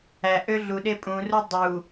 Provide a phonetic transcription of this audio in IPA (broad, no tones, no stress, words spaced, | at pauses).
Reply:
æ ʔøɮuɗe pʼũru dˤu